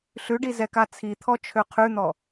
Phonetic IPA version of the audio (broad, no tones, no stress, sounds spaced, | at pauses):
ɬ ʉ ɖ i z ɛ k a t͡sʰ i t̪ʰ ɔ t͡ʃʰ ø qʰ ʉ n̪ ɔ